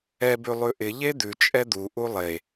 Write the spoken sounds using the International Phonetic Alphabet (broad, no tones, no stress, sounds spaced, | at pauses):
ɛ b ʉ lˠ ʉ ʔ ɪ ʎ e d̪ ʉ t͡ʃʼ ɛ d̪ u ʔ u lˠ e